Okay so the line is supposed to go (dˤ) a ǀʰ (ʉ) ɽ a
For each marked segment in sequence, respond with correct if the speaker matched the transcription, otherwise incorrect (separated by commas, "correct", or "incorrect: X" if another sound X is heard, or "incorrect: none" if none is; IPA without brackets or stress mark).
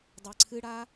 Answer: correct, incorrect: ɨ